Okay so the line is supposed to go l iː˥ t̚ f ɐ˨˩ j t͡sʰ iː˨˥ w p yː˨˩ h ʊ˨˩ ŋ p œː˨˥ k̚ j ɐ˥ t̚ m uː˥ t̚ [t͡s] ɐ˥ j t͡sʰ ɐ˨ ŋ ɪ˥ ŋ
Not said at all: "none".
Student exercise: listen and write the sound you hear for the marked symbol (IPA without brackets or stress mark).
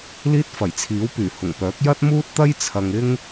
t̪